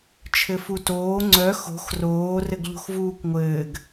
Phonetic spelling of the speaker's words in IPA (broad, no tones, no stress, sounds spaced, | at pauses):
t͡ʃʰ ɘ f u t oː ŋ͡ǀ œ x o̤ x r oː r ɘ ɡ ʎ o̤ x v uː kʷ ŋʷ ɘː ɡ